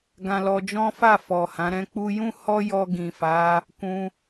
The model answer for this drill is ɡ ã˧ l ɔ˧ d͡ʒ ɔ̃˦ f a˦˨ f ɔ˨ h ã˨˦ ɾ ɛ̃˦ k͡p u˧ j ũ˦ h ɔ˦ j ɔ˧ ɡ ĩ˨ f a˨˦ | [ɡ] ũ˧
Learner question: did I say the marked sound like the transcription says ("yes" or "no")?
no